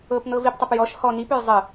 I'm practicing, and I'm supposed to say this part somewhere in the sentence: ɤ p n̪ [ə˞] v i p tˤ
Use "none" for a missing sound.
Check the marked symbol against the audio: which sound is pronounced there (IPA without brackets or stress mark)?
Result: ɤ